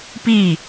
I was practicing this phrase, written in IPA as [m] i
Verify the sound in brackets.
incorrect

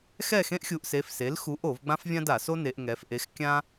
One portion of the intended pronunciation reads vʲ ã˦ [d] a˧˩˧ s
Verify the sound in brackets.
correct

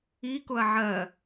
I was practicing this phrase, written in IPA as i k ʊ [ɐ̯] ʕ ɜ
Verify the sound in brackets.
correct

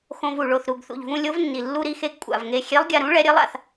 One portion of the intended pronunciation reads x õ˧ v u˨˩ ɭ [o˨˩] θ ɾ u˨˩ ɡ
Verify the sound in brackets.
correct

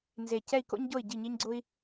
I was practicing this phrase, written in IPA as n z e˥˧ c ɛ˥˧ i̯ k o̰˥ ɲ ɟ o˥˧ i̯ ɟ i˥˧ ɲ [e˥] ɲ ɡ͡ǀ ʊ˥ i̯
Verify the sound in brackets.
incorrect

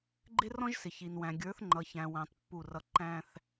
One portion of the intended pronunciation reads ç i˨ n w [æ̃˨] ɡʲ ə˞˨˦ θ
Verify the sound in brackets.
correct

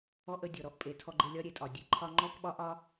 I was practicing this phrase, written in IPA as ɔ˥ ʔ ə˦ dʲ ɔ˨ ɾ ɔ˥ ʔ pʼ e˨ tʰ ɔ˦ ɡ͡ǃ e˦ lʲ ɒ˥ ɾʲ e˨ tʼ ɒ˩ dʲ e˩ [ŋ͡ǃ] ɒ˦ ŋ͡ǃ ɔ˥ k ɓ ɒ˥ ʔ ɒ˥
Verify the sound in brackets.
incorrect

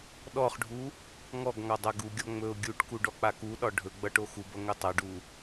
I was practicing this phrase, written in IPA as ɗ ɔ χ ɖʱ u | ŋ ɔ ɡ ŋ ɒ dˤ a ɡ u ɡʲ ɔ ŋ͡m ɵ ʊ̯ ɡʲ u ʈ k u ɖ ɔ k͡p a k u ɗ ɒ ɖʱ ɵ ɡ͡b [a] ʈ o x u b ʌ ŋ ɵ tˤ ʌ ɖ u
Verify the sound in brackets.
incorrect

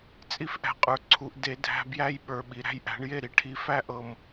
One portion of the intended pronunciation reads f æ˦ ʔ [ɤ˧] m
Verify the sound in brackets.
correct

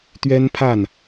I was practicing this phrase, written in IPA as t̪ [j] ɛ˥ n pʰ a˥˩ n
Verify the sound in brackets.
incorrect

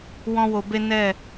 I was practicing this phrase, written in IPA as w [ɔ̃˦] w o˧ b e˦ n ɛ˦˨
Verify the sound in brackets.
correct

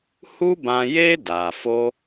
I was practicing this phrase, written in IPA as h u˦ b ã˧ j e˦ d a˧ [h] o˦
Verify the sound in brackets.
incorrect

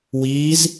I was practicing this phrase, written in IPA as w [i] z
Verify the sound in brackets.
incorrect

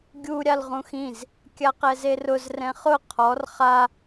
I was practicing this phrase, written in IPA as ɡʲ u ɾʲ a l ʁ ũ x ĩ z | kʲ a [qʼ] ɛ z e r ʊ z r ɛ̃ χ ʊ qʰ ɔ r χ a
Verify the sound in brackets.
incorrect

